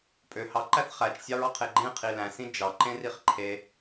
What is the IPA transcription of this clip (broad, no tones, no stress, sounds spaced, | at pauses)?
pʼ ø h ɑ ǃ æ θ χ æ t͡ʃ sʲ ɑ ɹ ɑ qʰ e ɡ͡ǃ ẽ qʰ i l æ̃ s ĩ d͡ʒ ɑ ǃ ẽ r i χ ǃʰ e